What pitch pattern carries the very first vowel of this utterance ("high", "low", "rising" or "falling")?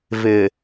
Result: low